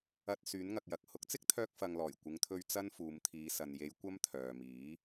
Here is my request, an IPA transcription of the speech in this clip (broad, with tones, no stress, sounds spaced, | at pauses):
ɐ˧ t̚ s yː˨˥ n ŋ ɐ˨ k̚ j ɐ˨ k̚ h ʊ˨˥ k̚ t͡s ɪ˥ k̚ t̪ʰ œː˧ k̚ f ɐ˨ ŋ l ɔː˨˩ j kʷ ɪ˨˧ ŋ t̪ʰ ɵ˧ ɥ t͡s ɐ˥ n f uː˨˧ m t̪ʰ iː˨˧ s ɐ˨ n j e˨˧ j kʷ ɐ˥ m t̪ʰ œː˨ m iː˨˥